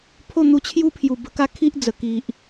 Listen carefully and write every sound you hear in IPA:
pʰo˥˧ n̪u˧t͡ɕʰju˦pʰju˨˩ bə˧ka˦kʰi˦ʔ d͡zə˨˩ ki˨ʔ

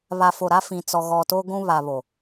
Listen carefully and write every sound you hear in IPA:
βa˨fo˨ ɾa˦fĩ˨ t͡sɔ˨ɣɔ˨ to˦ɡʷũ˦ βa˨βo˨

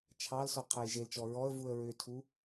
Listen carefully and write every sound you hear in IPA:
t͡ʃʰɑlsɔ qʰɛjʒelt͡ʃɔ ɹɔə̯vuə̯ ɹʏtʰu

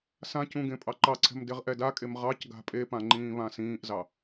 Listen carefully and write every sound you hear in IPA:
sãcũ ɡẽpʼɑǃɑǀʰɛ̤m deʁʔɛdakʼem ʁɑc ɡa̤pʼepã ŋ͡ǃĩːβãsĩːʔzɑ

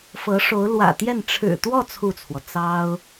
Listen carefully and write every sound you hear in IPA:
fɤ˧˥ʂo˧˥ʊ̯ lwä̰˨˩t̪jɛ˥˩n ʈ͡ʂʰɻ̩˨˩t̪wɔ˥˧ t͡sʰu˥˩t͡sʰwɔ˩ t͡sɑ˥ʊ̯

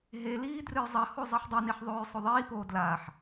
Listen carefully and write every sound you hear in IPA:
ɦeliː drɨjzˤɐho zˤiħdˤiniħ ðˤoːjsˤoðˤiːpoː dlaːħ

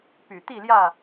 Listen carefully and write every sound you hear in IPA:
py˨˩ t̪i˥˨ljä˥˨

